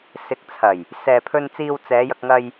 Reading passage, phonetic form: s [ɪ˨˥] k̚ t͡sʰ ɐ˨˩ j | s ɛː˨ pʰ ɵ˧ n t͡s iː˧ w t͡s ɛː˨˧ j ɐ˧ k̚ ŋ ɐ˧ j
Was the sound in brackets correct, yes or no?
yes